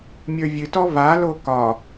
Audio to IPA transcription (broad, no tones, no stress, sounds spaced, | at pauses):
mʲ ə˞ vʲ ɨ t ɔ v a l o k ɒ